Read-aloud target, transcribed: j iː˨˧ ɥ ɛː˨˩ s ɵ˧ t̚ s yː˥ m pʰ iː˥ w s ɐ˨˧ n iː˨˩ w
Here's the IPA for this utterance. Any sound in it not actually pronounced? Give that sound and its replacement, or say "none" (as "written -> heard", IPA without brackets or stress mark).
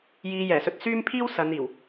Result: ɥ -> j